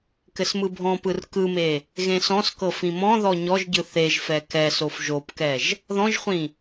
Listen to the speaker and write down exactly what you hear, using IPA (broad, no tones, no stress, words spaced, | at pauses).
kɘsmɯbʱɔ̃pɯr kɯme | ɣẽsɔ̃skɤ fĩmɔ̃ðɔ ɲɔʒɟɯ θeʒfɛ kɛsof ʒopkɛʒ | ðɔ̃ʒχʷĩ